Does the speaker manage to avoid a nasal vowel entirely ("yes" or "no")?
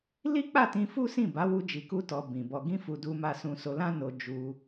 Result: no